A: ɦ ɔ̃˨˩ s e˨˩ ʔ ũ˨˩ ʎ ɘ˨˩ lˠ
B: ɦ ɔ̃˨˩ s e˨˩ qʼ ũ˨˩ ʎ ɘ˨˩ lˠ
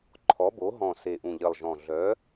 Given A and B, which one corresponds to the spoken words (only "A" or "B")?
A